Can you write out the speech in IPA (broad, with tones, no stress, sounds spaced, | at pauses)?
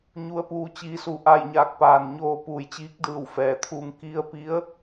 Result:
ɲ u˩˧ ə̯ p uː˩ t͡ɕ iː˩˧ s u˩ ʔ a˧˩ j ɲ aː˧˩ k̚ p aː˩ n ɲ oː˧ p uː˩ j t͡ɕ iː˧˥ k̚ d ɯː˧˩ w f ɛː˩ t̪ʰ uː˧ ŋ k i˧ ə̯ p i˧˥ ə̯